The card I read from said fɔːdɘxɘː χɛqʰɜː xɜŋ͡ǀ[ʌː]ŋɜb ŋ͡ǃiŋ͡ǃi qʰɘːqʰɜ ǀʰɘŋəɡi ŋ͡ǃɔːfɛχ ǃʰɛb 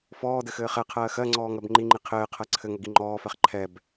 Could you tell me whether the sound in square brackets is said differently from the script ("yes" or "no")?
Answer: yes